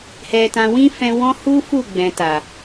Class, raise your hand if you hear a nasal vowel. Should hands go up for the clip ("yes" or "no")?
yes